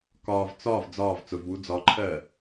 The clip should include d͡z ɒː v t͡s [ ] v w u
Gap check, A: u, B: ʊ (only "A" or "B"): B